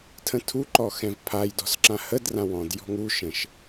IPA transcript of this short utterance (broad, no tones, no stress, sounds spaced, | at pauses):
tʰ ə̃ tʰ u ǃ ɔ x ɛ̃ v pʰ a j d ɔ̤ s ǁ ã h ə d r ã w ɔ̃ d j ɔ̤ ŋ u ʃ ə̃ ʃ